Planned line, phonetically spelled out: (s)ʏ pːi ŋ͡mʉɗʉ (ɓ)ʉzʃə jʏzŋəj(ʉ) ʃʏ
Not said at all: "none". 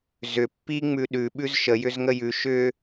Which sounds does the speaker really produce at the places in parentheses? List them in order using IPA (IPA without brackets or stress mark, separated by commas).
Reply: z, ɓ, ʉ